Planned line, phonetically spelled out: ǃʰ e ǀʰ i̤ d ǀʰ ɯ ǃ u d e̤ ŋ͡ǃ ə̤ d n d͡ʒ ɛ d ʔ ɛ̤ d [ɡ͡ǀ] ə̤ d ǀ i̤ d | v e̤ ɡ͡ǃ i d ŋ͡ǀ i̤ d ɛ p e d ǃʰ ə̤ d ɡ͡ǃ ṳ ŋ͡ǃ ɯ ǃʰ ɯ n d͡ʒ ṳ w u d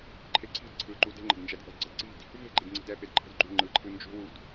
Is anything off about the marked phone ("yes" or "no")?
no